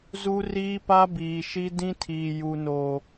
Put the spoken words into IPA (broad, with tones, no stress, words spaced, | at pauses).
zu˦riː˦pa˦biː˨ ʃi˦dĩ˦tʰiː˨ ju˨no˨